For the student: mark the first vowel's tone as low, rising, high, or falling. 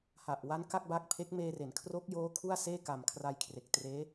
low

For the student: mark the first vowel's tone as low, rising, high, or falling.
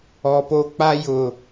low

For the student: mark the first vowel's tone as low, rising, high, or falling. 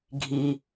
low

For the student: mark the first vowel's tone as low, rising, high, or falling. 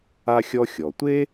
high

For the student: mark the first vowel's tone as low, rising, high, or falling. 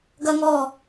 high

